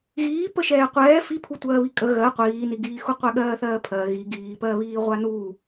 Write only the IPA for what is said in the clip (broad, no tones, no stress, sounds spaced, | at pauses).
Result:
ɣ iː p ə ʃ ɛː qʷ ɛː f i pʰ u tʷ ɜː β i kʼ ə ɣ ɜ qʷ iː n i ɡ iː x u qʷ ɛ ɠ ɜː θ ɜː pʰ ɜ ɣ i ɡ iː p ɜ β iː ʁʷ a n u